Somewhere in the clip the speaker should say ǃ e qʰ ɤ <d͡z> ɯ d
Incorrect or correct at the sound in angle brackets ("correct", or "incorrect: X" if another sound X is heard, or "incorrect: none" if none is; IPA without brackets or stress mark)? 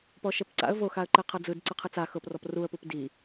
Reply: correct